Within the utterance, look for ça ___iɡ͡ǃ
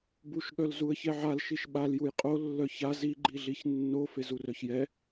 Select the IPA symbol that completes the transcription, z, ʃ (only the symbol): z